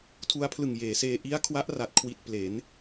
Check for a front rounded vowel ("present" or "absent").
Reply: absent